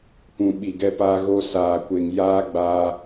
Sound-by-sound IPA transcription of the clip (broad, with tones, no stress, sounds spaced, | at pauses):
p ũ˨ ɓ i˨ ɡ ɛ˧ p aː˧ ɣ o˧ s aː˨ kʷ e˨ ŋ j aː˦ ɡ͡b aː˧